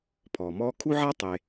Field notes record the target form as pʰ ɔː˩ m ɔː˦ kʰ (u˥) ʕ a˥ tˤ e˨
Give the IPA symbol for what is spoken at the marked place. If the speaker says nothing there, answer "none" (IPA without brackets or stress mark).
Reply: u˥